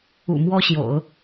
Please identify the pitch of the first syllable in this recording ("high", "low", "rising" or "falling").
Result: low